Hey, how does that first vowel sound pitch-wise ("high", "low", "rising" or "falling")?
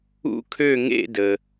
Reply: falling